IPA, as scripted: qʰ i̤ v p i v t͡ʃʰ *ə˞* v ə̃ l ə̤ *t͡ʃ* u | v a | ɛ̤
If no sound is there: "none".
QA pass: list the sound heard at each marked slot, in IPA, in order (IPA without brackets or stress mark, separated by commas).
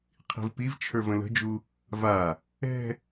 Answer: ə˞, d͡ʒ